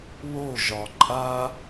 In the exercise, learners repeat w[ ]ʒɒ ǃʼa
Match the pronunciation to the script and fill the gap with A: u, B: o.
B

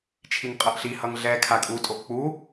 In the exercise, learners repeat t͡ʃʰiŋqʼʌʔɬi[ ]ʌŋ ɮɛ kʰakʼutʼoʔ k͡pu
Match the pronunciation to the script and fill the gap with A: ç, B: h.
B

